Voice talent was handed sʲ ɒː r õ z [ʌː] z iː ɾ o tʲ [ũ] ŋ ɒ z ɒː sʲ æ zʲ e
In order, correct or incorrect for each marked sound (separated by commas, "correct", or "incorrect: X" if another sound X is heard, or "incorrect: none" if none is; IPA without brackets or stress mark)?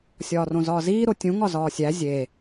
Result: incorrect: ɒː, correct